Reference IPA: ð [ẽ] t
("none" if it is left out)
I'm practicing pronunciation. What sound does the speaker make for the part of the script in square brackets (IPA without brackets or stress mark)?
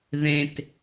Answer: ẽ